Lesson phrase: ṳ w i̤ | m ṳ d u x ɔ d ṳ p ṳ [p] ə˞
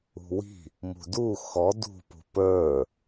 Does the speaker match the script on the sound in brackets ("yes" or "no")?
yes